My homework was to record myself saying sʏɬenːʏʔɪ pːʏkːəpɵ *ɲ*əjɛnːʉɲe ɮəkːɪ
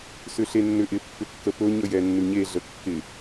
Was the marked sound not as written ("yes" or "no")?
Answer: no